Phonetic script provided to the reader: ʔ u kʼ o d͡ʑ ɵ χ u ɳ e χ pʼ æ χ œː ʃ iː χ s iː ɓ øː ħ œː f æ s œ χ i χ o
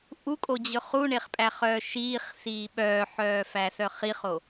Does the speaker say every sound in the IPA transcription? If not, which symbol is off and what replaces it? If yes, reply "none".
øː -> œː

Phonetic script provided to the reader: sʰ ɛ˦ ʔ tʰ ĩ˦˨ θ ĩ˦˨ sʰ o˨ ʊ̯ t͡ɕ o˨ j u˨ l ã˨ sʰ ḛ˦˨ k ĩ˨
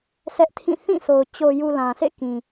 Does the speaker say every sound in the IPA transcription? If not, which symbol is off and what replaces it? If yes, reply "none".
none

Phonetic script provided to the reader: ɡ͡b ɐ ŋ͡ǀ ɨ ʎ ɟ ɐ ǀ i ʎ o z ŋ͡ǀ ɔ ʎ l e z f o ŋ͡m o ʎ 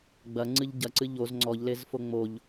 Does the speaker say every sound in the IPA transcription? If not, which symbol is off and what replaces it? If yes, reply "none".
i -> ɨ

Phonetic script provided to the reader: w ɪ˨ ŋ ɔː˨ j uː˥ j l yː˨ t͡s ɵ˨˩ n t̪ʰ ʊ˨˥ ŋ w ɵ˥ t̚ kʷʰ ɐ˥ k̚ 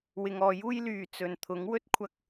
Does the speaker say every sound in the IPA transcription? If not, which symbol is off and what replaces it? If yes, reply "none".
none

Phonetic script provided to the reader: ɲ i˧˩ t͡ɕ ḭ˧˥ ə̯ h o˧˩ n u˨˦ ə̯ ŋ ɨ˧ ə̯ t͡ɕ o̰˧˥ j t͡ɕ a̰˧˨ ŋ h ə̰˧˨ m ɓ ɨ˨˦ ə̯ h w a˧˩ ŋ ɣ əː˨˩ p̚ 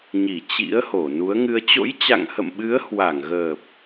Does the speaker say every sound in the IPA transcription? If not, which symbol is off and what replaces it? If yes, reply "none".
none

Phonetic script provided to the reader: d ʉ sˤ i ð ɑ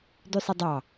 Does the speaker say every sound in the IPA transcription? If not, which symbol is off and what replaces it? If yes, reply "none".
ð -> dˤ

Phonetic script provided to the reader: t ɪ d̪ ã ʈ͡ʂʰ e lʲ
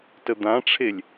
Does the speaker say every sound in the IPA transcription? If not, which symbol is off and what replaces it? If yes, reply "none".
ɪ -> ə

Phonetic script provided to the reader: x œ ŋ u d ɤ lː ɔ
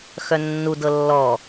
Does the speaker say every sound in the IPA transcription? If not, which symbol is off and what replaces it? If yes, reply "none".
ŋ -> nː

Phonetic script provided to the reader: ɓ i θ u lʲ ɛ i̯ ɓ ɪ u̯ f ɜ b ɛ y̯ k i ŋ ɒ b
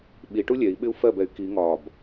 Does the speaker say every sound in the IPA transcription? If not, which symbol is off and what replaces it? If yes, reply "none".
θ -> ʈ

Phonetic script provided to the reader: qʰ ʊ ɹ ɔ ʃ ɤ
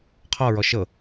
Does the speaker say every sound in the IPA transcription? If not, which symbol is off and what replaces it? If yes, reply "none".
ʊ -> ɔ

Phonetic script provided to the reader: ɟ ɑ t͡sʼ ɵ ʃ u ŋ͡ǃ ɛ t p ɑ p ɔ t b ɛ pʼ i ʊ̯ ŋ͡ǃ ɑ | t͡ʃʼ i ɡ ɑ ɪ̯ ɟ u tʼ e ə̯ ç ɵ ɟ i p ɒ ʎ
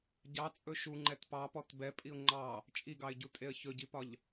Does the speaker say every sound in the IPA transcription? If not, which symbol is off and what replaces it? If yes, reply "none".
none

